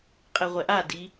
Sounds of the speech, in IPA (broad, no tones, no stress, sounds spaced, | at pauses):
qʼ e ʁʷ ɛ ʔ a d i